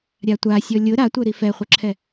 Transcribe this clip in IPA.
ɾʲatʷasʲɔ lʲʊ ɾatʷœɾi fɛχʷœǁʰɛ

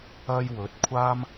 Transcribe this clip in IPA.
ɐ˥jwɵ˨˥t̚ kʷʰaː˥m

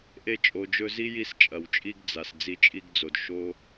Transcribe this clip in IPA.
ʔe˧t͡ʃʼo˨ d͡ʒɵ˧zi˦ ji˦st͡ʃʼɐ˨wt͡ʃʼi˦ɡ d͡za˨s d͡zi˧t͡ʃʼi˦ɡd͡zo˨d ʃo˦

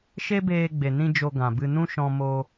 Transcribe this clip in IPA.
ʃe˦beː˧ɡ͡be˨nĩ˧ d͡ʒo˧ɡã˨bɨ˧ nũ˦ʃɔ̃˧ mo˧

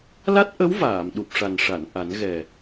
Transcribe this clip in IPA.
la˦˥t̚ʔə˧˥w vaː˨˩˨mɗu˨˩p̚ʂa˨˩nʂa˨˩˨n ʔa˨˩˦nɣɛ˨˩

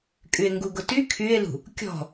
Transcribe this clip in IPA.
kʼye̯ŋɡuɡʊty kʰye̯lṳ | kʲɔ̤

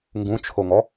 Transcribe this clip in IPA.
ŋɡũt͡ʃʰoŋɔ

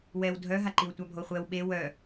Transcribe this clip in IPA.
wɛw dʱœɦaǃiw tʷabʱoχʷɛw ɓe wœ

